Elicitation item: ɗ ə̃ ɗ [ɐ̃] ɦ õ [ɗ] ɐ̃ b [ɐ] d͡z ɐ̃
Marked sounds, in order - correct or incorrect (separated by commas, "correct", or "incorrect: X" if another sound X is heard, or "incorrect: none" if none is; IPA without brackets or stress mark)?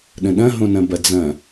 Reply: correct, incorrect: n, correct